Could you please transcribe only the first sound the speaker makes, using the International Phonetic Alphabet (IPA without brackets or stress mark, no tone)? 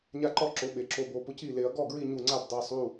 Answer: ɲ